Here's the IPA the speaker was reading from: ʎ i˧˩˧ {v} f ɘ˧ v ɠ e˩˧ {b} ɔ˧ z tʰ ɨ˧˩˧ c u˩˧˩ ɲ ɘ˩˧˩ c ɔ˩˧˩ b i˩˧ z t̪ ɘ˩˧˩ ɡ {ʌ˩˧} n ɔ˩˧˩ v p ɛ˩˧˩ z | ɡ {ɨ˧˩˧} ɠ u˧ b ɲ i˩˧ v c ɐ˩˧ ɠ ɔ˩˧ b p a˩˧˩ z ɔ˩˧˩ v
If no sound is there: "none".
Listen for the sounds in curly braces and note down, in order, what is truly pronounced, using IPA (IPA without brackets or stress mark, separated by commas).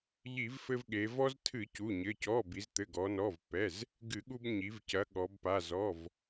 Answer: v, v, ɔ˩˧, ɨ˧˩˧